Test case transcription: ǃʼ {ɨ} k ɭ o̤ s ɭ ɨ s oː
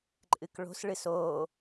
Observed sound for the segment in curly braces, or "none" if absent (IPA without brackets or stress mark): ɨ